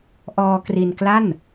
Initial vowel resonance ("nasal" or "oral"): oral